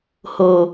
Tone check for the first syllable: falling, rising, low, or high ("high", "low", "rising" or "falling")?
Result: low